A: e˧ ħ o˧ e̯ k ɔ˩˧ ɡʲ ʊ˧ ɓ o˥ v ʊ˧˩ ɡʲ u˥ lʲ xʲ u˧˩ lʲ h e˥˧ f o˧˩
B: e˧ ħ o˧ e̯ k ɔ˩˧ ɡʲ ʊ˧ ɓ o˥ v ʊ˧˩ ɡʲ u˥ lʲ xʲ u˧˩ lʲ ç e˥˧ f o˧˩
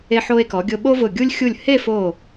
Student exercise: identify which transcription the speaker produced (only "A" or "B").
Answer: A